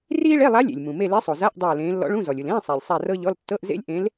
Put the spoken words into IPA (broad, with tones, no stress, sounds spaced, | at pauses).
r iː˥ ɭ e˧˥˧ lˠ a˧˥ lʲ ḛ˩ lʲ m ũ˩ m e˦˨ l e˧˥ sˤ o˩ z a˧˥˧ ʔ dˤ ɤː˦˨ l ẽː˧˥ lː ɔ̰˧˥ ɭ ũ˧˥˧ z ɔ˩ lʲ u˩ l ẽː˧˥˧ sˤ a˩ lʲ sˤ a˦˨ r ɤ˥ ʎ ɔ˧˥˧ l tː ɤ˧˥˧ ʔ z ḛ˥ lʲ ʔ ẽ˧˥ l